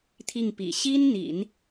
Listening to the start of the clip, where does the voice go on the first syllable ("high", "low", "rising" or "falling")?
falling